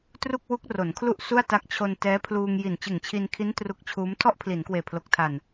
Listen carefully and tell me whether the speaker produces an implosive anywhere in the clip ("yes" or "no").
no